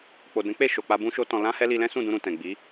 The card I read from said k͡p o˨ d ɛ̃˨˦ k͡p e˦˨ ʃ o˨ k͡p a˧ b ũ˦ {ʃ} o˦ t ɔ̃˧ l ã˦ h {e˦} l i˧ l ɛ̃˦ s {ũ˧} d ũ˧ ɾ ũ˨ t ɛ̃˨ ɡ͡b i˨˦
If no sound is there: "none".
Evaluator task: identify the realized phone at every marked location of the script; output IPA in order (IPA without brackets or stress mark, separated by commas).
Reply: ʃ, ɛ˦, ũ˦˨